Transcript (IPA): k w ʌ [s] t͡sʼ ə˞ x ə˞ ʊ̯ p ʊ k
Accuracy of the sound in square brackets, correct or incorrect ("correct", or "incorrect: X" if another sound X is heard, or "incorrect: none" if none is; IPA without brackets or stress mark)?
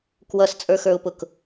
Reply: correct